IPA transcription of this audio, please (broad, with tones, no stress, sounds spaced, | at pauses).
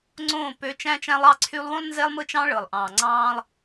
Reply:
ŋ͡ǀ õː˦˨ p ø˦ t͡ʃ æ̃˦ t͡ʃ æ̃˦ lˠ ɑ˦ ǀʰ y˦ lˠ w õ˦ lˠ n z e˦ lˠ m ɯ˦ t͡ʃ ɑ̃˦ ɭ ɯ˨ lˠ ʔ ɑ̃ː˨ ŋ͡ǀ ɑ̃ː˦ lˠ